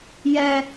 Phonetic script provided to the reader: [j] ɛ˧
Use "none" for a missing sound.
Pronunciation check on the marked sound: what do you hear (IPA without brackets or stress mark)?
j